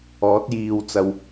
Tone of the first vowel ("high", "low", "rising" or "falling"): rising